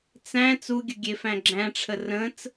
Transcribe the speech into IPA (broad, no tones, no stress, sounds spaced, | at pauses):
t͡s æ̃ t͡s u ɡʲ ə ɡʲ e f æ̃ ɡ͡ǁ æ̃ ʈ͡ʂʰ ə r ə̃ t͡s